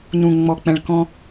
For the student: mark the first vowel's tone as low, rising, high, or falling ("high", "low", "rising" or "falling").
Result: low